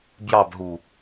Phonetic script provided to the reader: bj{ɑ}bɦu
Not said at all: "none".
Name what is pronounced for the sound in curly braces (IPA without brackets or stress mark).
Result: ɑ